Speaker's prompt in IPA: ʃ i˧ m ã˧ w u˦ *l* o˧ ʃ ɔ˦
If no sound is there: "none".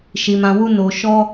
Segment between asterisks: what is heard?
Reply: n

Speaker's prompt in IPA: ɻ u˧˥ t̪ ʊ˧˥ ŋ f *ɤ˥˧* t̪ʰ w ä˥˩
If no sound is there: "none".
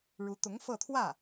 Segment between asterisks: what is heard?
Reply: ɤ˥˧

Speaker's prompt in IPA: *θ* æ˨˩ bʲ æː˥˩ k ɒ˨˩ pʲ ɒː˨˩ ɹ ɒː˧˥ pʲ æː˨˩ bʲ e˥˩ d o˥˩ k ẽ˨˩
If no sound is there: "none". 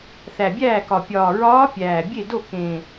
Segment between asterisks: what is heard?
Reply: θ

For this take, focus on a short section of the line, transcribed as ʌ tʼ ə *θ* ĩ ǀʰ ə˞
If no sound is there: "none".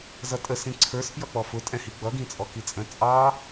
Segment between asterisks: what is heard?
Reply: s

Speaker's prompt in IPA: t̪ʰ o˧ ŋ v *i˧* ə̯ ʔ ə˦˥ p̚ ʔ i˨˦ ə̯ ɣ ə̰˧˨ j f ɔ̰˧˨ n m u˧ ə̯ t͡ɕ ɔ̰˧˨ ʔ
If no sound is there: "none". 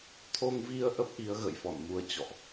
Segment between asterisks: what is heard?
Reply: i˧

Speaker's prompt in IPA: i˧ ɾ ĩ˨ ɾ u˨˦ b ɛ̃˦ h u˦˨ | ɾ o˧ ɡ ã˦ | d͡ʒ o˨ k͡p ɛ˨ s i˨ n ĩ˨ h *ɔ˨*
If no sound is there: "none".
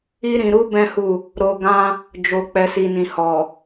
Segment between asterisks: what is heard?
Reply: ɔ˨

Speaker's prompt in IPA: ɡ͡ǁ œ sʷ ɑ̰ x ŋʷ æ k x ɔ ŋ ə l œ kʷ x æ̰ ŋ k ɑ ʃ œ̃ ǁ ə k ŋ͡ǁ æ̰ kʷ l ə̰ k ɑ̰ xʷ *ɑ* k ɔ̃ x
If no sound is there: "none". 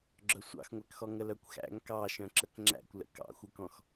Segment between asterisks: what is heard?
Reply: ə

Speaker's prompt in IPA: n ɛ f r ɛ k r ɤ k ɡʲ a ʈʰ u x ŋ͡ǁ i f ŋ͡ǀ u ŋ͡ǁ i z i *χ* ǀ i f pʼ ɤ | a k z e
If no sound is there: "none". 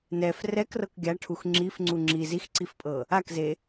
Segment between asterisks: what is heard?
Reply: x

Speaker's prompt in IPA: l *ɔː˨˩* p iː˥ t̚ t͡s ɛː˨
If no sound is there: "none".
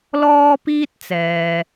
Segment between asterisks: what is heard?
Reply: ɔː˥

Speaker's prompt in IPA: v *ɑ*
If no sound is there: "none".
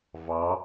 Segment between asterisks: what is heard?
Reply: ɑ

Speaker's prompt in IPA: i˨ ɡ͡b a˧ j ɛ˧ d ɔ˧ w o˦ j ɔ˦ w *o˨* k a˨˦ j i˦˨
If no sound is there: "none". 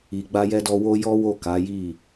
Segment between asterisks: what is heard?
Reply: o˦˨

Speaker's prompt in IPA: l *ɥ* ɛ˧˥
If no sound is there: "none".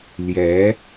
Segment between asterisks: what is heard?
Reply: j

